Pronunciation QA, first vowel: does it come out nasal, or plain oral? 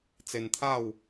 oral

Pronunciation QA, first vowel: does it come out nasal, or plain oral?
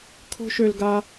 oral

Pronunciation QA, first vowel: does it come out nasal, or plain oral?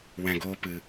nasal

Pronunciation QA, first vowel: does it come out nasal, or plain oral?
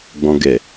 nasal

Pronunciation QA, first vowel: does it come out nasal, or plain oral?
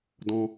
nasal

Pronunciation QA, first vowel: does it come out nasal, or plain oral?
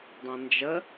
nasal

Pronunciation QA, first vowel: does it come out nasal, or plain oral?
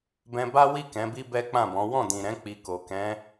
nasal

